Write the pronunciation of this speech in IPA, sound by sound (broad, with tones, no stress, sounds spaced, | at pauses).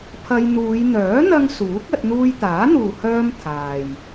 pʰ ɐ˧ j n̪ uː˨˧ j n̪ œː˨˥ n̪ ɐ˧ ŋ s uː˨˥ k̚ ɐ˧ t̚ n̪ uː˧ j t̪ aː˨˥ n̪ uː˨ h œː˧ m t̪ʰ aː˨ j